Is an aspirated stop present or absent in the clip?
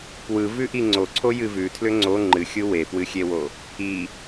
present